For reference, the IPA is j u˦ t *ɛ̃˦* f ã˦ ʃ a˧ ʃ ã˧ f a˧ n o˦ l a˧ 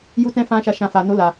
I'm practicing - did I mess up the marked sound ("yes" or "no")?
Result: no